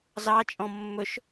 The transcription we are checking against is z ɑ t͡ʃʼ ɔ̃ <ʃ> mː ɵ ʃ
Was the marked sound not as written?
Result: yes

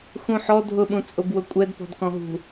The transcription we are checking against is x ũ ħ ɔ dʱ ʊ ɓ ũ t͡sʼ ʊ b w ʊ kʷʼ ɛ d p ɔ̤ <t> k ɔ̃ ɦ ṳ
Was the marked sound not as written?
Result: yes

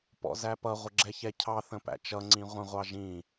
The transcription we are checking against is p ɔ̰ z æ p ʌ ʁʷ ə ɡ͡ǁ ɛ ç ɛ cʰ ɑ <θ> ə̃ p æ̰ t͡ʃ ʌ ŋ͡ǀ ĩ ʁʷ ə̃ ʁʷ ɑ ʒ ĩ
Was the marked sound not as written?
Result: no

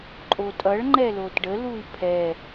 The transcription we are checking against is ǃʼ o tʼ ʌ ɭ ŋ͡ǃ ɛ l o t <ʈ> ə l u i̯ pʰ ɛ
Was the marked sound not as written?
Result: yes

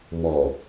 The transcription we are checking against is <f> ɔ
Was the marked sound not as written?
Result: yes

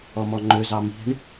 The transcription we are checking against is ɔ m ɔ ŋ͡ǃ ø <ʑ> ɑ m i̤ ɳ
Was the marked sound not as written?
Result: yes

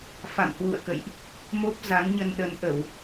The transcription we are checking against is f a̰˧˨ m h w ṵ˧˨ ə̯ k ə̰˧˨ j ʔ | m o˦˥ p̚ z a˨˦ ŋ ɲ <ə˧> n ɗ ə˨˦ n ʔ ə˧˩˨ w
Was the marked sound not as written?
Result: no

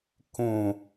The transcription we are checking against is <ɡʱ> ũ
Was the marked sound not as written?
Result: yes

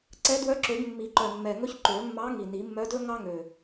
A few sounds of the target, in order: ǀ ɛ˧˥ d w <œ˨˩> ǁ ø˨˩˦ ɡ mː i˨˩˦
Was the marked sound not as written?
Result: yes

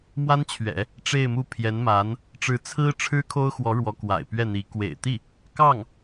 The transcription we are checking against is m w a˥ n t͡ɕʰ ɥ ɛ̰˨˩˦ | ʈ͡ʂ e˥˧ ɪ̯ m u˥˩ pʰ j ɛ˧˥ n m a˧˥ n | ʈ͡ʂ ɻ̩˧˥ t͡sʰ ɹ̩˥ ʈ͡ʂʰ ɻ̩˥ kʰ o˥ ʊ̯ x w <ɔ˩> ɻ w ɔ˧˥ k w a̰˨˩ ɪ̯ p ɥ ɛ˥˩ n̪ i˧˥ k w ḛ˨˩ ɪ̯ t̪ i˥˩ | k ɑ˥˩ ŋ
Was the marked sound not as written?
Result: yes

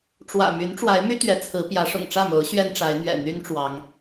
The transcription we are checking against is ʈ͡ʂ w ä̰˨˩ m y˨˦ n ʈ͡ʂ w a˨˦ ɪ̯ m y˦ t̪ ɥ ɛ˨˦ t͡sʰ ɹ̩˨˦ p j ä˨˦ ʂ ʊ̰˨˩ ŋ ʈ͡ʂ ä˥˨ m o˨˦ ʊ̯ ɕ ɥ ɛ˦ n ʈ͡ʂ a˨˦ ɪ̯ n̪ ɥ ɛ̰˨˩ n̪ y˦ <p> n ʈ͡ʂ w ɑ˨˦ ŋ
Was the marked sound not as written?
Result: yes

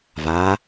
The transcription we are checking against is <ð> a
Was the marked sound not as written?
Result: yes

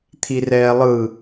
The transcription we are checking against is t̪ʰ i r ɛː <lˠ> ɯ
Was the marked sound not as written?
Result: no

